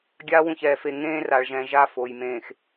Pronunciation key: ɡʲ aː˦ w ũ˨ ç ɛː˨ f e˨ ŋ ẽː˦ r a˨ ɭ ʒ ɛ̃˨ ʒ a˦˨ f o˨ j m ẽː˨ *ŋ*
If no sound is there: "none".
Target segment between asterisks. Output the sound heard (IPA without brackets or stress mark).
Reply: x